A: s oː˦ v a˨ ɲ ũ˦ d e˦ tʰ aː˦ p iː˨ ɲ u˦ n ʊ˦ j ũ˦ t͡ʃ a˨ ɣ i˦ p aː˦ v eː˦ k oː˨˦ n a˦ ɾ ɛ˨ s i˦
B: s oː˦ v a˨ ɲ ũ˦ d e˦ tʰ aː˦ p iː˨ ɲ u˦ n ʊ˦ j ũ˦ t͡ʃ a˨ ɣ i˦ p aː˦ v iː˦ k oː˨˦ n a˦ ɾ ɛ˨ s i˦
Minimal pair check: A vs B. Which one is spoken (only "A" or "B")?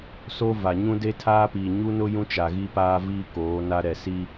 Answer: B